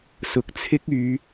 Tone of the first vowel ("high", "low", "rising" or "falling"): low